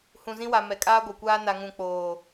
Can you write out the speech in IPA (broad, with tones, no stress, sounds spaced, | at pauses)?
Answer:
h ũ˨ z ĩ˦ w a˨ m ɛ˨ kʼ aː˦ ɡʷ a˨ kʷ aː˦ n a˨ ŋ ũ˨ k͡p oː˨